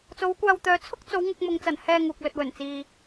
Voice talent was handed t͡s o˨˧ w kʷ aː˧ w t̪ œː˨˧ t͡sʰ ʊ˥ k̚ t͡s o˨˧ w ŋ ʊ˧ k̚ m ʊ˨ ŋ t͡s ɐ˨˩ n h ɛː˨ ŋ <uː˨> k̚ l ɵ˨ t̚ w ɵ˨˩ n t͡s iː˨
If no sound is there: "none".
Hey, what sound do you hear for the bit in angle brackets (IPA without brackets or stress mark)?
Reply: uː˨